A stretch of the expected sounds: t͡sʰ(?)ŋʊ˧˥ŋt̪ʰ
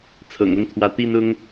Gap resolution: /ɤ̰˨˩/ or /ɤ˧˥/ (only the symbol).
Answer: ɤ̰˨˩